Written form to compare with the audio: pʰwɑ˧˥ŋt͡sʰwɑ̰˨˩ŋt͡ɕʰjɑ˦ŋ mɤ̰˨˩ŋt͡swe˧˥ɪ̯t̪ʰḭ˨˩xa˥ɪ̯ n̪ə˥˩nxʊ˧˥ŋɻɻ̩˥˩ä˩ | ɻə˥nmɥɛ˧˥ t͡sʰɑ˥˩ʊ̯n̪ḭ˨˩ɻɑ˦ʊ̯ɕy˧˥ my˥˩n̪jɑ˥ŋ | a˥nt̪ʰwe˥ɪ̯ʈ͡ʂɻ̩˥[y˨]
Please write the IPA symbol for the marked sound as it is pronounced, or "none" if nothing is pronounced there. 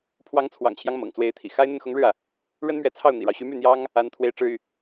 y˨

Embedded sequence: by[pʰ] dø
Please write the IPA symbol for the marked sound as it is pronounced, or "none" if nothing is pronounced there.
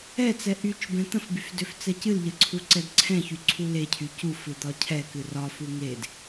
f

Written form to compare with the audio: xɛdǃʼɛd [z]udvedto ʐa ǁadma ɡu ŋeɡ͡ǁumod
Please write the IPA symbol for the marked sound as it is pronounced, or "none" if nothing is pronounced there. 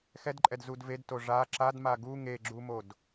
z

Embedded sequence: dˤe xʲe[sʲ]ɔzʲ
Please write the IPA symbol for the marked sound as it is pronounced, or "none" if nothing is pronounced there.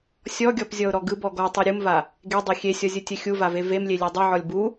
sʲ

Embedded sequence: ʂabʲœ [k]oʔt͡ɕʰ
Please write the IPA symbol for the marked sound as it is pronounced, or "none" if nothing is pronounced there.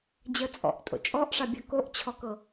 k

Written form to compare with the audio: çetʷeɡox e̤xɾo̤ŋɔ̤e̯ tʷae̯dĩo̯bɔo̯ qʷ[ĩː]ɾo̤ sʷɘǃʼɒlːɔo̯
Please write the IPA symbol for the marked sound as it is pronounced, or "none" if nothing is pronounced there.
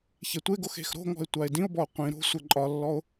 ĩ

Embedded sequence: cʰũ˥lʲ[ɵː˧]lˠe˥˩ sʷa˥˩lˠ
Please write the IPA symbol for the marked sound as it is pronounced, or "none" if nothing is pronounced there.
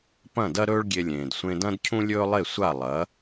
ɵː˥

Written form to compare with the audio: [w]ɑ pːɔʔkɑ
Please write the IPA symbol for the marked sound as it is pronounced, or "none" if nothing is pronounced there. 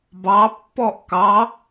b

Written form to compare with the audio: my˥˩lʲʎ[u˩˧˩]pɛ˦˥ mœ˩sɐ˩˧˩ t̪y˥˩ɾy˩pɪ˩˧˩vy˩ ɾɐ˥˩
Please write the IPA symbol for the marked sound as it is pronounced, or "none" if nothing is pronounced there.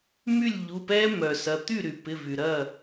u˩˧˩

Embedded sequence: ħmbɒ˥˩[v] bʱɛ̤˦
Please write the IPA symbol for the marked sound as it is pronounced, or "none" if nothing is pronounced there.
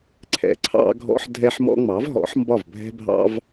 v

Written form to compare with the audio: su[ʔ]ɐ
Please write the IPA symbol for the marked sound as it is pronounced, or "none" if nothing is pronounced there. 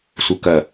k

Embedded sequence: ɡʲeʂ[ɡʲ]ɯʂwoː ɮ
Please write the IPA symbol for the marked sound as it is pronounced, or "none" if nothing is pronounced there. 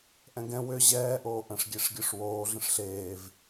ɡʲ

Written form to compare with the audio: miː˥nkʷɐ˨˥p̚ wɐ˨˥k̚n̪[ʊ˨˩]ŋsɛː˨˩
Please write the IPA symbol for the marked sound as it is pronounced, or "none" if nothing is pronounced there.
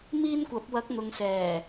ʊ˨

